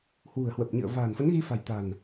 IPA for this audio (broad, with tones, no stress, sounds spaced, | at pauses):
h w ṳ˨˩ ə̯ h w ə˨˩ p̚ ɲ ɨ̰˧˨ ə̯ v a̤ː˨˩ n f ə˨˦ n ɣ i˧ f a̤˨˩ j t̪ a̤˨˩ n